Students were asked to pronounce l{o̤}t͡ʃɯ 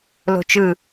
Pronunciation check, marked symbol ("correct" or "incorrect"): correct